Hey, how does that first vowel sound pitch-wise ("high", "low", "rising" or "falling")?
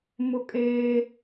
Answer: high